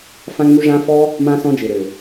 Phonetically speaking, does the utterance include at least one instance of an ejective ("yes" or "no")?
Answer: no